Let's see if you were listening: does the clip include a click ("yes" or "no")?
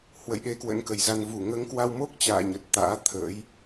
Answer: no